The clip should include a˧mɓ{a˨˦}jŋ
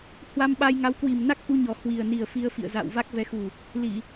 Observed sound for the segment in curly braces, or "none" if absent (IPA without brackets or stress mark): a˧